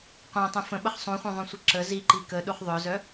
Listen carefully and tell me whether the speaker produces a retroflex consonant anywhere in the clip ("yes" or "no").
no